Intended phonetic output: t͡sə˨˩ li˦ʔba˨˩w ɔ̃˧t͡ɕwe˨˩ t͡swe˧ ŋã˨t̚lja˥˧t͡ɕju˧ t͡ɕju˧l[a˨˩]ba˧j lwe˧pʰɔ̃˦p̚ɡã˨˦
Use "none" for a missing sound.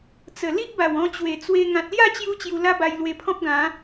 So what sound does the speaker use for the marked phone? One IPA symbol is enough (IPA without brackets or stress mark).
a˦